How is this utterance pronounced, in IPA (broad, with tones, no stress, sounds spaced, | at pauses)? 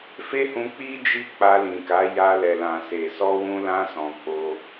f e˦ h ũ˧ k͡p i˦ d͡ʒ i˦ k͡p a˧ l ĩ˨ k a˨˦ j a˧ l ɛ˨ l ã˨ s e˨ s ɔ˧ w ũ˧ l ã˧ s ɔ̃˨ k͡p o˧